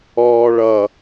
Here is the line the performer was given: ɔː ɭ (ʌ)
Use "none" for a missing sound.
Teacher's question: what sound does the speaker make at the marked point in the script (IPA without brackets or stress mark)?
ʌ